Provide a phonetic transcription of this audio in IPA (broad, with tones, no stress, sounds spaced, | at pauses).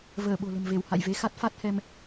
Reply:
v əː˧˩ ɓ o̤˨˩ l ə̤˨˩ m v e˧˩ w h a̰˧˨ j v e˨˦ x a˦˥ t̚ f a˦˥ t̚ h ɛ˧ m